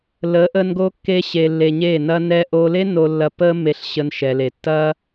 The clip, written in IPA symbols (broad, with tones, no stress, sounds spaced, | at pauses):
l ə˨˦ ʔ ə˧ n ɡ o˦ kː e˦ ɕ e˧ lː e˧ ɲ e˦˨ n ɐ˧ n ɛ˧ ʔ o˧ l e˦ n o˧ lː ɐ˧ p ə˦ m e˧ ɬ ɕ ə˧ n ʃ ɛ˨ l e˨ tː ɐ˦